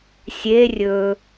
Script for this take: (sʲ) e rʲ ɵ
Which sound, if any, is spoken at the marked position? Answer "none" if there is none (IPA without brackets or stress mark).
sʲ